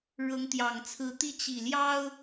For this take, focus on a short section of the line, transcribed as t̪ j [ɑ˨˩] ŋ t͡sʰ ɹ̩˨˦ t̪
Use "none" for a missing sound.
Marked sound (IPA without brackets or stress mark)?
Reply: ɑ˨˩